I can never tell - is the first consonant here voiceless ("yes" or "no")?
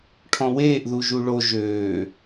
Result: yes